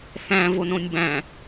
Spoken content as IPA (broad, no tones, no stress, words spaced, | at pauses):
θæ̃ vonõnʲbæ̃